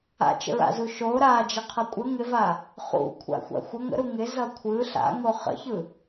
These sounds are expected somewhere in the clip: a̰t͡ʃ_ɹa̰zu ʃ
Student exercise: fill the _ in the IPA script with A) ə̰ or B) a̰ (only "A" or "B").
A